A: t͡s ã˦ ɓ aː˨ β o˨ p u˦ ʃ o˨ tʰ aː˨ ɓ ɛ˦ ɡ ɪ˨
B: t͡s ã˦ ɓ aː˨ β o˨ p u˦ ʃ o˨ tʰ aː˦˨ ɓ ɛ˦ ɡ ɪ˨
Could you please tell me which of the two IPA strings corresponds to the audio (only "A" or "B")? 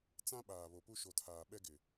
A